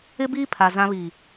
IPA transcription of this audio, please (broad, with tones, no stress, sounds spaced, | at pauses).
ɪ˦ b iː˦ pʰ a˨ z ã˦ β iː˨